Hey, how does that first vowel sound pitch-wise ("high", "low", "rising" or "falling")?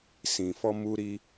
low